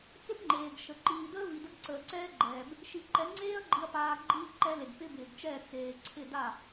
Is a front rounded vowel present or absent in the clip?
absent